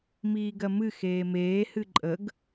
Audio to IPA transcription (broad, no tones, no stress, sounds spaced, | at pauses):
m iː ɡ ɜ m ɨ x eː m eː h ɨ ǃʼ ə ɡ